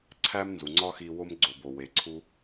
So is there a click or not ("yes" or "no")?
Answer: yes